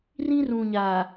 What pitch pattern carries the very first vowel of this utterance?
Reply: high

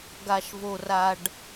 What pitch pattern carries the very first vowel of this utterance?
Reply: low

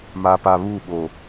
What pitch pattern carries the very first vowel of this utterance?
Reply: low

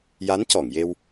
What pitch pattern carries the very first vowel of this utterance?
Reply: rising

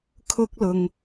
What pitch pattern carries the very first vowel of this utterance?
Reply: high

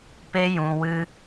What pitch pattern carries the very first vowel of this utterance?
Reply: high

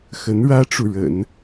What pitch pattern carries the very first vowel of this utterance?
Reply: rising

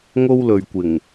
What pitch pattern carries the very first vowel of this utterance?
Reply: high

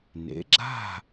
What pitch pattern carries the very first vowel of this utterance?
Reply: rising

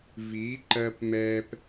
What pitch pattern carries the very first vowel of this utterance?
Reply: rising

